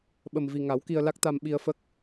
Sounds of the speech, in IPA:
ɓ ə˨˩ m v i˨˩ ŋ a˨˩˦ w k i˧ ə̯ l a˦˥ k̚ t̪ a˧ m ɓ i˧ ə̯ f ə˦˥ k̚

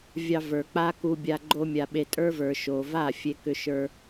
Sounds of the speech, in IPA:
vʲ ɑ˧ v ə˞˨ k͡p a˦ k u˧ bʲ a˧ ɡ͡ǃ o˧ mʲ a˨ ɓ e˨ tʼ ə˞˦ v ə˞˨ ʃ o˨ v a˦˨ fʲ e˧ k ʏ˧ ʃ ə˞˧

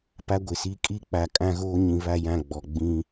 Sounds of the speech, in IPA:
p a˦ ɡʷ ɪ˨ s i˦ kʼ i˦ k͡p a˨ kʼ ã˦ ɣ oː˦ ɲ ĩ˨ β a˦˨ j ã˦˨ ɡ͡b ɔ˨ ɡ͡b ĩ˦

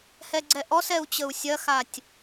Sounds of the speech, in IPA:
h ɛ ɡ͡ǀ ɛ ʔ ɔ s ɛ u̯ t͡ɕ ə u̯ sʲ ɐ x a tʲ

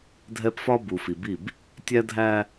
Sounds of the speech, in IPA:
dʱ ɛ˦ p f ɒ˦ b u˨ f i˨ b i˦˨ b | tʲ æ˦ dʱ æ˦

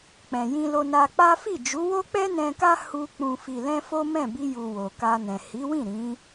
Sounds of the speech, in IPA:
k͡p ɛ̃˨ j ĩ˧ l o˧ n a˧ k͡p a˦ f i˦˨ d͡ʒ u˨˦ w o˦ k͡p ɛ˦ n ɛ̃˧ k a˦ h u˧ k͡p ũ˨ f i˨ l ɛ̃˧ f o˦ m ɛ̃˦˨ b i˧ j u˨ w o˨ k a˧ n ɛ̃˨ h i˨˦ w ĩ˦˨ ɾ ĩ˨˦

